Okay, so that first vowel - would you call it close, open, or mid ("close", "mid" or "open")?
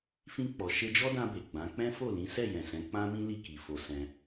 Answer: close